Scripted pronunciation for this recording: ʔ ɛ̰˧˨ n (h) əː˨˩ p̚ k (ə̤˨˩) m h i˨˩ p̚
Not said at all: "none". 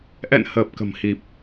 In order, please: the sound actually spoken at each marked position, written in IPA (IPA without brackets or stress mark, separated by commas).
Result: h, ə̤˨˩